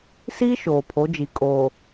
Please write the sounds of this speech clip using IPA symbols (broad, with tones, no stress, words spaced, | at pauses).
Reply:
siː˦ ʃoː˨pʰo˨˦d͡ʒi˨ kʼo˨